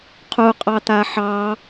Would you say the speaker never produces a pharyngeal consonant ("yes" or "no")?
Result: no